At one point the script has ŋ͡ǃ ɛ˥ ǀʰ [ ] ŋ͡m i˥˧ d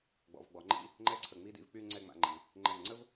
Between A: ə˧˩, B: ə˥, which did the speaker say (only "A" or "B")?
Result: A